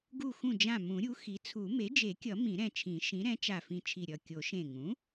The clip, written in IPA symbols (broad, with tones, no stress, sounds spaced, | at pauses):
ɡ u˧˩ x ũ˧˩ d͡ʒ ã˧˩ m ũ˨˩˦ ɾʲ u˩˥ x i˩˥ t͡sʰ u˨˩˦ m e˩˥ d͡ʒ e˨˩˦ kʲ ʌ˨˩˦ m ĩ˨˩˦ ɾ ɛ̃˧˩ t͡ʃʰ ĩ˨˩˦ ʃ ĩ˩˥ ɾ ɛ̃˩˥ t͡ʃ a˧˩ f ĩ˧˩ t͡ʃʰ i˧˩ ɾʲ ʌ˧˩ kʲ o˨˩˦ ʃ ẽ˧˩ ŋ ũ˩˥